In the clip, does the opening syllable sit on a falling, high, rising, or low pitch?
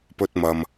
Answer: high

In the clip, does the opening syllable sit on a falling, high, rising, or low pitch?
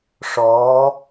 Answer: rising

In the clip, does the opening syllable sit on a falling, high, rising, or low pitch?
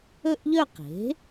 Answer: falling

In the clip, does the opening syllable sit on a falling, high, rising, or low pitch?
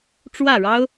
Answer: falling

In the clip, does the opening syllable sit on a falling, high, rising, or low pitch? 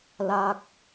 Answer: falling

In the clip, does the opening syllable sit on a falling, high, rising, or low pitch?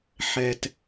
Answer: low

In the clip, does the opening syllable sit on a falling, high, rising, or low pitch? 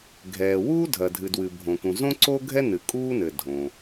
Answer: low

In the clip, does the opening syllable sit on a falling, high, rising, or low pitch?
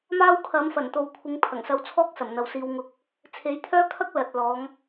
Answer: high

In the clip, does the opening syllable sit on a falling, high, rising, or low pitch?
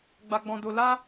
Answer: high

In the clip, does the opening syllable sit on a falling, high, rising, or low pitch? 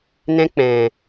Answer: high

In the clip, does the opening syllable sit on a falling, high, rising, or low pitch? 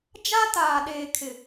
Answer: high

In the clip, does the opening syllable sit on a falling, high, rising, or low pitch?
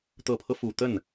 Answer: low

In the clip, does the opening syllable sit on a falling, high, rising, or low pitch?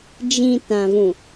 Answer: low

